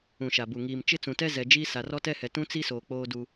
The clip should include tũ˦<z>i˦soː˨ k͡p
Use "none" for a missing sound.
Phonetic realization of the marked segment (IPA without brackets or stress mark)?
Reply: t͡s